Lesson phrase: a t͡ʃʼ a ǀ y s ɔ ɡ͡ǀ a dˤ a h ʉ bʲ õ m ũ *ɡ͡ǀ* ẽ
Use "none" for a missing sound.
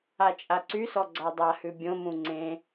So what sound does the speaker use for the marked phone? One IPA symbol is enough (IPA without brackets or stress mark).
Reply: ŋ͡ǀ